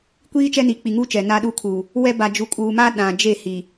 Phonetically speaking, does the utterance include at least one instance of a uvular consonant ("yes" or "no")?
no